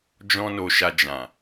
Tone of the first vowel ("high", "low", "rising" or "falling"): high